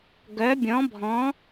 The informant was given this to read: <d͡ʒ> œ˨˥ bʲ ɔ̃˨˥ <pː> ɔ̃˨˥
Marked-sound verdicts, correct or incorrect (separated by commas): incorrect, incorrect